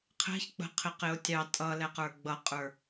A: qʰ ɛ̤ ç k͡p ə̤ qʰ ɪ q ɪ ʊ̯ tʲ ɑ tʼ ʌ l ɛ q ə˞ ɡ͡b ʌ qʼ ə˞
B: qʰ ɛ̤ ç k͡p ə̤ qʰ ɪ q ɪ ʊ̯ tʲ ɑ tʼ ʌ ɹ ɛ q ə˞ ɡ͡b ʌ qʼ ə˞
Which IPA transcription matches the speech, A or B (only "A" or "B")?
A